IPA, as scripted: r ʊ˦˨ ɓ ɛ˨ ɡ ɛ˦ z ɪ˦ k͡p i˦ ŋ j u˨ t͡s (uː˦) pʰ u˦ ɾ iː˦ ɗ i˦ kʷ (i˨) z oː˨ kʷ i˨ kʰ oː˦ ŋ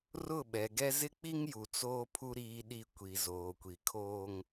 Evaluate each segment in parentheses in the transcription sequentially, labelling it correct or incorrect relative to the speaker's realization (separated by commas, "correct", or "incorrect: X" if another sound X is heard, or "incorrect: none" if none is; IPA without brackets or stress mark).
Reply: incorrect: oː˦, correct